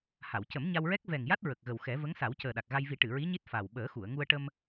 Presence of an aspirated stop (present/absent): absent